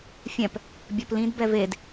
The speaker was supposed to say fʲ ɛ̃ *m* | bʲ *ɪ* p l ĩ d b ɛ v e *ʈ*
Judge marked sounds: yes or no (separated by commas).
no, no, no